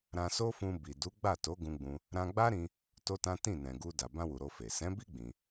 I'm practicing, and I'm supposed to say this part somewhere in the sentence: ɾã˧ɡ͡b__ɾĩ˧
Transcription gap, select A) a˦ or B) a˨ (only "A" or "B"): A